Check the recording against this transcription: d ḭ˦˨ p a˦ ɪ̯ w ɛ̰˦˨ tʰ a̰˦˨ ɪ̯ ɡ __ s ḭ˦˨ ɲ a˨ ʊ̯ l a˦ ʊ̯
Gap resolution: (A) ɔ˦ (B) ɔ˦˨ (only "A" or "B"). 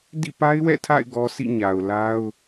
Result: A